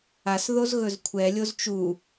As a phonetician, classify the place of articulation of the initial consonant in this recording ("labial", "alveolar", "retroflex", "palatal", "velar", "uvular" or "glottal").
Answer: alveolar